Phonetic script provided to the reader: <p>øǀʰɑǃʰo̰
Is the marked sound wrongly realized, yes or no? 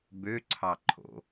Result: yes